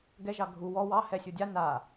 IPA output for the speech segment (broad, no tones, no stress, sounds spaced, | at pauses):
ɡ ɛ ʒ ɑ ɡʱ u w ɔ w ɑ h ɛ sʲ u dʲ a n a